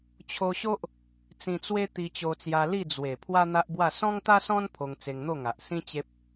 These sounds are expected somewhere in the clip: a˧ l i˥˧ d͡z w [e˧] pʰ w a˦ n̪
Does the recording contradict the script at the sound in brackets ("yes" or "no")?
yes